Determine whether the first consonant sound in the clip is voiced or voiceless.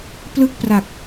voiceless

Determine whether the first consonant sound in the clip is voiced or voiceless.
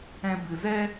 voiced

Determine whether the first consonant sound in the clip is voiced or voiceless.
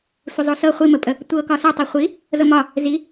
voiceless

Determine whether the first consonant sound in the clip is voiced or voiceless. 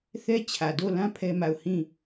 voiceless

